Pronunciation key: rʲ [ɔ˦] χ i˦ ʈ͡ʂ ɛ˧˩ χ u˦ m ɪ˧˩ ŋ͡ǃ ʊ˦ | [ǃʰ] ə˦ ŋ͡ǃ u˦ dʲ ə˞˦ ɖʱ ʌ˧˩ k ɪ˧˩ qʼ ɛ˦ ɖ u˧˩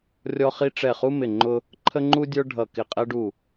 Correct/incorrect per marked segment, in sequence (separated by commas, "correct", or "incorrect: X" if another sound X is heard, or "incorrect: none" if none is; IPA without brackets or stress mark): correct, correct